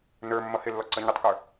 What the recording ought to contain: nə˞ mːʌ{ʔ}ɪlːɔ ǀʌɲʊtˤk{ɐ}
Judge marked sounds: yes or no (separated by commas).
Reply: no, no